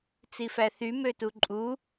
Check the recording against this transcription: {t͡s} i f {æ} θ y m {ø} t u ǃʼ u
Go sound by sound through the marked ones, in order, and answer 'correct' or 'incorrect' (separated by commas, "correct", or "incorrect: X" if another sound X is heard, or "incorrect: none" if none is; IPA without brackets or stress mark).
correct, correct, correct